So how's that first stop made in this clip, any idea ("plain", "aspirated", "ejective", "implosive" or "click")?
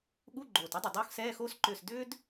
implosive